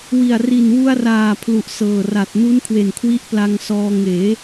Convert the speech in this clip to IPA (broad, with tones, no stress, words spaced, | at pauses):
wi˨˩a̯ri˨˩n wu˧a̯raː˨˩ pʰlu˨˩ʔsɤː˨˩ra˨˩t̚nu˦˥n kʰwe˨˩n kʰwi˦˥ʔpla˧ŋsɔː˧ ŋeː˩˦